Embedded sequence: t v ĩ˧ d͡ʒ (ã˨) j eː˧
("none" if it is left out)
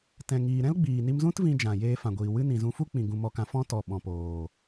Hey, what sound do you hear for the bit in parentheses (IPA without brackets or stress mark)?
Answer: ã˨